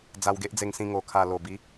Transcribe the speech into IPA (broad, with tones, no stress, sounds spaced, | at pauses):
d͡z a˧ w ɡ e˦ ʔ d͡z e˧ ŋ s ĩ˧ ŋ o˨˩ kʰ a˨˩ l o˨˩ b i˨˦